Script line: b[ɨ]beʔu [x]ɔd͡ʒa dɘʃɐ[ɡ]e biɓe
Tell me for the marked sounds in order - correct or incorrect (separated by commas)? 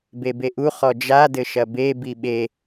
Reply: incorrect, incorrect, incorrect